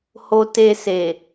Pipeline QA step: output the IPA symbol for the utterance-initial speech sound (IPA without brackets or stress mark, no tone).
h